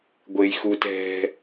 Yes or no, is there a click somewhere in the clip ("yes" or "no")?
no